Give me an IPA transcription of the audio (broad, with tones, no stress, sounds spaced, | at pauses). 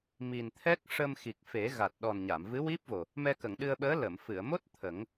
m i˨˩ n t̪ʰ ɛ˦˥ k̚ ʂ ə˧ m x i˨˩ k̚ f e˨˩˦ ɣ a˨˩ t̚ ɗ ɔ˨˩ n ɲ a˨˩˨ m v ɨ˧˥ w i˦˥ p̚ v o˨˩ | m ɛ˧ k ə˨˩˨ ŋ ɗ ɨ˧ ə̯ ɓ əː˧˥ l ə˨˩˨ m f ɨ˨˩˨ ə̯ m o˦˥ t̚ t̪ʰ ə˨˩˦ ŋ